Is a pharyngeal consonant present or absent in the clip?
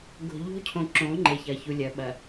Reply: absent